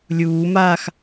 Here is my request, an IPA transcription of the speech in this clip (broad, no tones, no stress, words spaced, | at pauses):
lʲuːmaːx